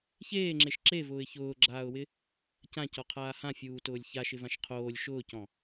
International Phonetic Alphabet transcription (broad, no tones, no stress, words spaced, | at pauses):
çeːŋ͡ǁeʃ ǁevʊːɪ̯ çʊːɡ͡ǁaːʊ̯wɪ | cãcɔqʰaː hãfʲuːtʊːlʲ çaʃɪvãʃ qʰoːlʲ ʃʊːcɔ̃